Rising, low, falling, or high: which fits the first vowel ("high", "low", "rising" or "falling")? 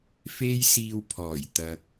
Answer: high